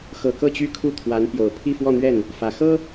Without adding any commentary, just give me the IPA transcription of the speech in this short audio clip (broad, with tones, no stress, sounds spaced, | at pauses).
x ɤ˨˩ k ɤ˥˩ t͡ɕ y˥ kʰ u˥˩ t̪ʰ w a˧˥ n p j o˨˩ ʊ̯ pʰ i˥˧ f w ɔ˥˧ n̪ ɥ ɛ˥˩ n | f ä˨˩ x ɤ˥